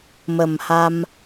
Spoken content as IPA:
mə˨˩mha˧m

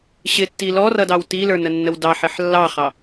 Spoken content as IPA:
ɕɪtːi lɔrʌdɑw tilə˞nənːəw dɑħɪħ lːɑχɑ

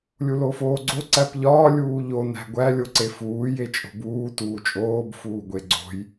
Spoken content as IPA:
lʲulofoːɡ͡ǀo ǀæpʎɒː lʲuːʎo næ̤ɡʷæ lʲoǀefuː jet͡ʃʼo̤buː tuːt͡ʃʼoːb fuːɡʷeɡ͡ǀo̤j

